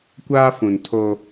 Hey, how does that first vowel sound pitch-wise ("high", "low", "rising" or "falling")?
high